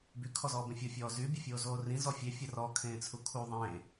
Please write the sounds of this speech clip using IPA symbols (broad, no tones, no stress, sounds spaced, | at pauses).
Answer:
b y kʰ ɔ z ɔː b ẽ fʲ o fʲ ɔː z y bʲ ə fʲ oː z oː r ĩ z ɔ fʲ e fʲ ə r ɔ kʰ ẽː t͡sʰ u kʰ u ðˤ ẽː